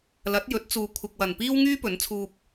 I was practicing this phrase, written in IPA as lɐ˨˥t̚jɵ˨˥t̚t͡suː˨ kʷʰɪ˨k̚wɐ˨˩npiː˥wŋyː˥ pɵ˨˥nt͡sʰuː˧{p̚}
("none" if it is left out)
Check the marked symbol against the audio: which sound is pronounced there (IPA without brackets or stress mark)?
p̚